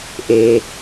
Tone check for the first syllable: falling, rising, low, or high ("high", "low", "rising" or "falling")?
low